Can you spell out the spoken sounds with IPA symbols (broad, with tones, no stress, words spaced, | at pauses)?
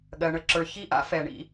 ɠɜ˨ɳə˨ ǁə˞˨çi˦ʔa̰˦ fɛ˨ɳḭ˦